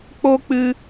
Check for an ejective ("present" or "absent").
absent